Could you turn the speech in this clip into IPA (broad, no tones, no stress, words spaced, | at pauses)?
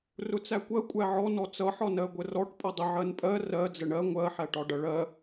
rʊt͡sækʷɜ kʷʼæʕɔ nɔt͡sʌ ħɒnɜɡʷərɔʈ pʼʌdˤə ʕɜnpʼɜ rɜ d͡zəɳɜ ŋʷɜ ħæʈɒɖʌɭɜ